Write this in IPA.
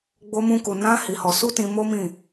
ɡ͡b o˧ m ũ˧ k u˨ n ã˧ h i˧ h ɔ˧ s u˦ t ĩ˧ m o˦ m ĩ˦˨

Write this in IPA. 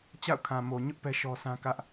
t͡ɕ a̰˦˨ ʊ̯ kʰ ã˨ m o˨ ɲ ʊ˦ ʔ p ɛ˦ ʃ ɔ˦ sʰ ã˦ k ä˦ ʔ

